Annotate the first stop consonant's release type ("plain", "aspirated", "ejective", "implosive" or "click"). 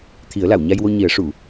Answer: aspirated